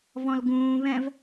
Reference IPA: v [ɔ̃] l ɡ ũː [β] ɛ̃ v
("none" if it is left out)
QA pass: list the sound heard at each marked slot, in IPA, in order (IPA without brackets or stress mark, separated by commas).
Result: ɔ̃, β